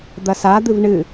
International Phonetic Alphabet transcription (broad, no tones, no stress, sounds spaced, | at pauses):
d̪ ɐ s a d̪ ɨ v ɳ ɨ